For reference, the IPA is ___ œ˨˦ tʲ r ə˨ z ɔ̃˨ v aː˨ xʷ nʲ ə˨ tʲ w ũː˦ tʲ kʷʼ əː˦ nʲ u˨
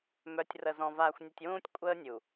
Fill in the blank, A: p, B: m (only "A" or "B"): B